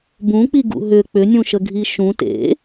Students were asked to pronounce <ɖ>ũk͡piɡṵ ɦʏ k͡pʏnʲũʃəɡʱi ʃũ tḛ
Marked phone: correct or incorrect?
incorrect